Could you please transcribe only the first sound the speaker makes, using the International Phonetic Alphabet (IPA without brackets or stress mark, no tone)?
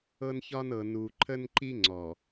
ɤ